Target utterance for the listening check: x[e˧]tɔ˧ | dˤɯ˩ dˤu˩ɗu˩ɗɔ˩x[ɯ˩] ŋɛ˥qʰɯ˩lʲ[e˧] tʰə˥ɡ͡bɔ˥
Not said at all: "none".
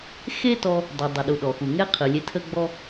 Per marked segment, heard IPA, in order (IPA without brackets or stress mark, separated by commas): e˥, u˩, e˧